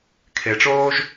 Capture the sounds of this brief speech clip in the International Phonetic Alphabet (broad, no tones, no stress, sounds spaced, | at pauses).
kʰ e ʈ͡ʂ oː ʒ